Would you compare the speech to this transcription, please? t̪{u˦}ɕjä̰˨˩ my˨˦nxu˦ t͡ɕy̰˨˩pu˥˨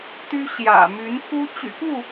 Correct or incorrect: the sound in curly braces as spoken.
incorrect: y˦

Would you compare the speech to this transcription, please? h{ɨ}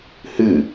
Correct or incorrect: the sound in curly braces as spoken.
correct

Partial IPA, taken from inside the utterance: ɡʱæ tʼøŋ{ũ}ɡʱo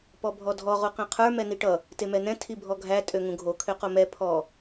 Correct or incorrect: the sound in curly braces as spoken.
correct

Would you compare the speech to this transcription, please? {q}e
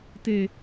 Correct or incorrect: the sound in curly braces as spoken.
incorrect: t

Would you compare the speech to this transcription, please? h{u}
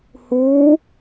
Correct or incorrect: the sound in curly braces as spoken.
incorrect: uː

